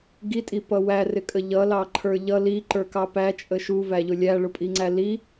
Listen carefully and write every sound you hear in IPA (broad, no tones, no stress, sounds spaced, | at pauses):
ɡ i tʼ i p ʌ w æ r ɪ kʼ ə ʎ ʌ l ɑ ǃʰ ə˞ ʎ ʌ l i ǃ ə˞ k ɑ p æ t͡ʃʼ ə ʃ u v æ ʎ ʊ lʲ æ ɭ ʊ pʼ i ŋ͡ǀ æ l i